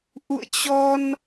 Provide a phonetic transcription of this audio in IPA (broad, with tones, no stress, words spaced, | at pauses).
ʔṵ˧˨ə̯t͡ɕɔ˧n